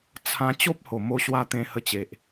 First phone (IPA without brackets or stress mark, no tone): t͡sʰ